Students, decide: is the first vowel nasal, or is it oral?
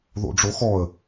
oral